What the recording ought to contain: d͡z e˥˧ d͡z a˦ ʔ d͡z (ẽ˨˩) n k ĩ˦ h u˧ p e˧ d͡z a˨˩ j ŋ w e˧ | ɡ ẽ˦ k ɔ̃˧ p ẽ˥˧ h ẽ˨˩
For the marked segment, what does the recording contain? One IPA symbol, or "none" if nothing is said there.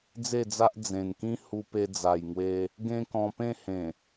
ẽ˨˩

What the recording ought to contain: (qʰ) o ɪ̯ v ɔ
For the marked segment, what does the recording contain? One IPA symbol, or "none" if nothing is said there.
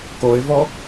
k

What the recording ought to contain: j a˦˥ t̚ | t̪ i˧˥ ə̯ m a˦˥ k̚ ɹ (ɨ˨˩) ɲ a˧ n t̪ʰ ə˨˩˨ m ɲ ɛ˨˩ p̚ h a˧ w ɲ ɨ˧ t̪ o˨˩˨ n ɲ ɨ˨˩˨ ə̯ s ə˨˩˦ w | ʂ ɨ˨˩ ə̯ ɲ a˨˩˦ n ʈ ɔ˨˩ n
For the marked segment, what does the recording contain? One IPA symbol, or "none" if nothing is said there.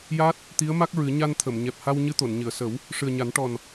ɨ˨˩˦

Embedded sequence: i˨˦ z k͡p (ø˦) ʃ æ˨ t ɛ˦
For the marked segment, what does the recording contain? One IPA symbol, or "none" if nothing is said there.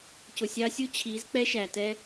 ɛ˦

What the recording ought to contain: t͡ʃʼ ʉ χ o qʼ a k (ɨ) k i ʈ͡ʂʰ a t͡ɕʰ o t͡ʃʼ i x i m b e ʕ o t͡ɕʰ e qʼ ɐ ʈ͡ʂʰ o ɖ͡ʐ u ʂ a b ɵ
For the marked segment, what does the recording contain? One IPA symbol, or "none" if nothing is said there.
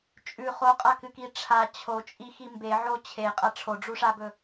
ɨ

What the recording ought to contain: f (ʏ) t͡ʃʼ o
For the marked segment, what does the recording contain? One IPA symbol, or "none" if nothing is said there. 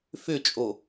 ʏ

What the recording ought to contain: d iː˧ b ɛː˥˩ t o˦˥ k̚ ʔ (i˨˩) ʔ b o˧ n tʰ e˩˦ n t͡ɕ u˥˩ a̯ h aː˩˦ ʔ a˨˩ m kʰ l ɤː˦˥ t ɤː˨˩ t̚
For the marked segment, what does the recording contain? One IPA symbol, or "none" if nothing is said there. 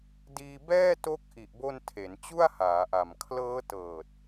i˨˩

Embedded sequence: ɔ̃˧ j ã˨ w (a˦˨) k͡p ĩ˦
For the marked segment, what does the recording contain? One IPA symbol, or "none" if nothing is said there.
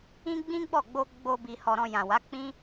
a˨˦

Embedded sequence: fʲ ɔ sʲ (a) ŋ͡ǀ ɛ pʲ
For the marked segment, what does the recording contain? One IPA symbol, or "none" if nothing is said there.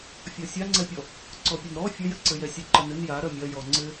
a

